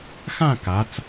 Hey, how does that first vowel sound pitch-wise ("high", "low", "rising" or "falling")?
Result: falling